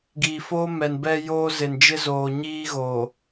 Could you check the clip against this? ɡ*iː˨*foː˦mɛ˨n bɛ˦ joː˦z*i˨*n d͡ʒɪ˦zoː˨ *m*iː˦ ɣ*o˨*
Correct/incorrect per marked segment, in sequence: correct, incorrect, incorrect, correct

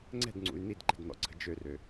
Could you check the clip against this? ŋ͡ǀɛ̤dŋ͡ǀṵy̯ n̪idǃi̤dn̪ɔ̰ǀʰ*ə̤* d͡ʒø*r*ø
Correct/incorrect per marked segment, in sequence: correct, correct

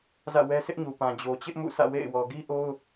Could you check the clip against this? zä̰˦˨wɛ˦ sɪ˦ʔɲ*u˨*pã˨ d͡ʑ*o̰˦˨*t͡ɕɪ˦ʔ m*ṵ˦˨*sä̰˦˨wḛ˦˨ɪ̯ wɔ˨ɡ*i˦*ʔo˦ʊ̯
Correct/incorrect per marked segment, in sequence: correct, incorrect, correct, correct

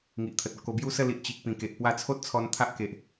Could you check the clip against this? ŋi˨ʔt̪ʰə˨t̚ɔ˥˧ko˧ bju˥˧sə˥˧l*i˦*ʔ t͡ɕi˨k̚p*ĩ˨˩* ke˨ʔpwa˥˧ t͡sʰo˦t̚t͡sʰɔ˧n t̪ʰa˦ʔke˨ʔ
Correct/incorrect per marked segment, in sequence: incorrect, correct

